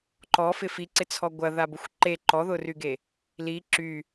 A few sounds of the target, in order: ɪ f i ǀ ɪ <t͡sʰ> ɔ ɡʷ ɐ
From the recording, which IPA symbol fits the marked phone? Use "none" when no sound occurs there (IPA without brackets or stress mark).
t͡sʰ